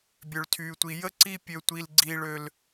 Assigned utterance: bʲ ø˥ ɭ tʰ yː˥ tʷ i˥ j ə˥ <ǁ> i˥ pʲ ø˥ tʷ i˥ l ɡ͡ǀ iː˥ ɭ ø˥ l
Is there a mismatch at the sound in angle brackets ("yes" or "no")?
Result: yes